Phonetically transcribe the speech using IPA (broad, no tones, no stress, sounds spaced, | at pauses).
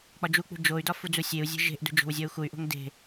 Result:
k͡p ɒ d͡ʒ u k͡p ṳ d͡ʒ o y̯ d ɒ f u d͡z u sʲ e u̯ zʲ e̤ ʒ e̤ ʔ d ṳ d͡ʒ o̤ w zʲ ɒ u̯ x u y̯ ʔ o̤ ŋ d e̤